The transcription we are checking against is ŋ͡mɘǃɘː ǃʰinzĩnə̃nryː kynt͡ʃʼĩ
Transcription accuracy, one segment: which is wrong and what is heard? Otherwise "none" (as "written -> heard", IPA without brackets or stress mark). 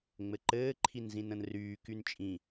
none